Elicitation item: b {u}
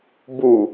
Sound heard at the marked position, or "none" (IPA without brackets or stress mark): u